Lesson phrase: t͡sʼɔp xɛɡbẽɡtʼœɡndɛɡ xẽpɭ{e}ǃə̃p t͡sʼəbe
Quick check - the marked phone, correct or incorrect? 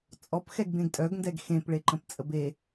correct